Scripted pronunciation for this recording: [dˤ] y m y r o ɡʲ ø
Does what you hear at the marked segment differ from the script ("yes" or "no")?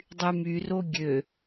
no